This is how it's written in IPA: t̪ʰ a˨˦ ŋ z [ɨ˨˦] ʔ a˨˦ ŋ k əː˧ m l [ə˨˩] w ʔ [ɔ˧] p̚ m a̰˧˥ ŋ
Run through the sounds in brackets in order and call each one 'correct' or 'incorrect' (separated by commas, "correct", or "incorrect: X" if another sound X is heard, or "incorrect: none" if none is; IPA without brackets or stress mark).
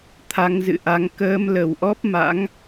incorrect: ɨ̰˧˨, correct, incorrect: ɔ˦˥